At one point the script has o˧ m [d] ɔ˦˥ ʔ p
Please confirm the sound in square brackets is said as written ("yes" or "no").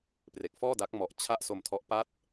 no